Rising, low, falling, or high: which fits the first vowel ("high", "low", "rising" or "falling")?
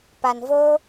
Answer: low